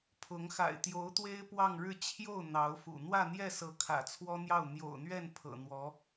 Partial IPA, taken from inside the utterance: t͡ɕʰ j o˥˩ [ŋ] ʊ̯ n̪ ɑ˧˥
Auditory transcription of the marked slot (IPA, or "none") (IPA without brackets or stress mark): none